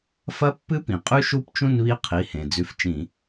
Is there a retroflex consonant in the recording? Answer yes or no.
no